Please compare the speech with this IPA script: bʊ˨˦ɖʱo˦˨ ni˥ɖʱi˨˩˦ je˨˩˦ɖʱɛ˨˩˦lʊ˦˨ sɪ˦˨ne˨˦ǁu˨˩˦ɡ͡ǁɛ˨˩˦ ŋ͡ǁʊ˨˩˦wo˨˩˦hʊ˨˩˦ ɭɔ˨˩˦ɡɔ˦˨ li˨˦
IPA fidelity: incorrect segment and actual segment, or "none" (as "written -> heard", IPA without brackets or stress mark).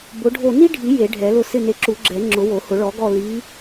none